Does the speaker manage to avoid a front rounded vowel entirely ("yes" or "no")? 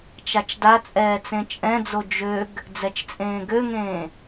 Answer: no